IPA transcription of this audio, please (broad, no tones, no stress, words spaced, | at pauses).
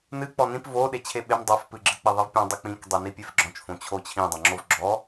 nɨ k͡pɔnĩp vo ɗet͡ɕʰeɓem dˤof pɨɡ͡ǁɨ k͡piðˤivpʲɔ̃ dˤɨk͡pĩk dˤenipʲefɡ͡ǁɔ̃t͡ʃ fõt͡ɕʰot͡ɕʰĩ dˤõŋ͡ǁovɡ͡ǁɔ